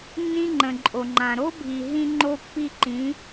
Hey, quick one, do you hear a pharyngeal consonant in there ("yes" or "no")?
no